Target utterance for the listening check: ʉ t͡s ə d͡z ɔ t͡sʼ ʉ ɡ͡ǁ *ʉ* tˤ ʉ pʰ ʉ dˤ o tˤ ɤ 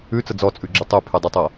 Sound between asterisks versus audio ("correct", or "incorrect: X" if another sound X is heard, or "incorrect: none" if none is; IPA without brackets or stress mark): correct